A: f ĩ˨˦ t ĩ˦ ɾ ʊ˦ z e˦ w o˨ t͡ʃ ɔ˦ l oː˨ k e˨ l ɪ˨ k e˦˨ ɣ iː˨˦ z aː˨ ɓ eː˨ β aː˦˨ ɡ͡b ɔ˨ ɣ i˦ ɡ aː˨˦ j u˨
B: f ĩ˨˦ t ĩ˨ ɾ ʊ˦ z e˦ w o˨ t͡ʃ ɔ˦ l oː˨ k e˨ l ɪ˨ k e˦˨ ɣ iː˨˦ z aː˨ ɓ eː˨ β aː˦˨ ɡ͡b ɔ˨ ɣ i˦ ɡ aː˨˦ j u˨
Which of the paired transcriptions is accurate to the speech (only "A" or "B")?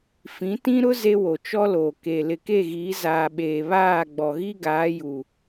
A